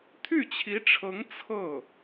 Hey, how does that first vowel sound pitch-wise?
falling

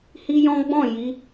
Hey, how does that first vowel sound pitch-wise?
high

